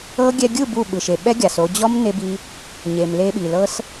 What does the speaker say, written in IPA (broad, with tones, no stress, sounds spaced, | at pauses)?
ɤ˦ ɡʲ ɛ˧ ɡʲ ɯ˦˨ b u˦˨ ɓ ɯ˨ ʃ e˨ ɓ ɛ˦ ɡʲ a˨ s o˧ d͡ʑ ɔ˦ m n e˦ b i˦ | ɲ e˨ m l e˧ ɓ i˨ l ɤ˦ s